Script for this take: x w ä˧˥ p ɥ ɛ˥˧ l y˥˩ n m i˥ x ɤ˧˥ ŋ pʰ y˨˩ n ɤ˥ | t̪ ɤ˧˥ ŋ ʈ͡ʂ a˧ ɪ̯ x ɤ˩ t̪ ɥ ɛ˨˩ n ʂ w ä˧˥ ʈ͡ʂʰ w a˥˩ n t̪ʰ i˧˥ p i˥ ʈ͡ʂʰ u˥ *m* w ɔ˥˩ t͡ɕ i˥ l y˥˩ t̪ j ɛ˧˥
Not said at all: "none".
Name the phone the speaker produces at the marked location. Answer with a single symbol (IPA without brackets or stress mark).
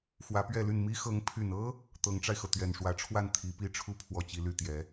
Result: pʰ